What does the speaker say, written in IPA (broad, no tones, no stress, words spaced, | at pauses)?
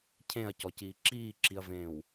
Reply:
cʰẽɐ̯cɔciː ǁiːǁiɐ̯vẽːw